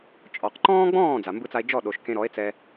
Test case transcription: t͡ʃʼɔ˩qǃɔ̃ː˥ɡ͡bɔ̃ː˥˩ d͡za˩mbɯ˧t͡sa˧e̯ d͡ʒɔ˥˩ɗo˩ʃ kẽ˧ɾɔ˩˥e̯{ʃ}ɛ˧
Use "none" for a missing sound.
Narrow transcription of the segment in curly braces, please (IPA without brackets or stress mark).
t͡s